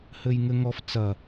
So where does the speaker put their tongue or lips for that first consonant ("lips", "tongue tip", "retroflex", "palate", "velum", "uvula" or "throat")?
throat